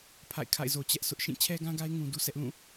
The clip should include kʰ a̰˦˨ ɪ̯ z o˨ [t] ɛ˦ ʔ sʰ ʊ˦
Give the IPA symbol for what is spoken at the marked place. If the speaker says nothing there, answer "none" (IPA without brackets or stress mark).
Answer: t͡ɕ